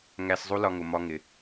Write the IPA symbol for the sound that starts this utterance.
ŋ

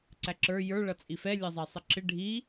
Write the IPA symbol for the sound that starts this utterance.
ǀ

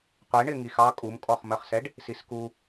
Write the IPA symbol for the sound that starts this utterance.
qʷ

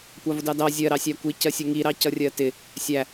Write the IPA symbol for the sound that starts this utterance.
kʷ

